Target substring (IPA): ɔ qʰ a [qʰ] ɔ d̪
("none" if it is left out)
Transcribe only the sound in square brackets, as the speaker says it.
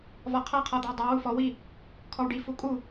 qʰ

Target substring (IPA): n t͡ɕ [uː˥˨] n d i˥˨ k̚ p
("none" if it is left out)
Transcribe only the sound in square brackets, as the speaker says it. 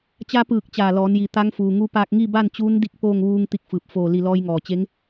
uː˧˥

